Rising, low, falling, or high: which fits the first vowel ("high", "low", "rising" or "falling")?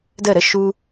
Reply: falling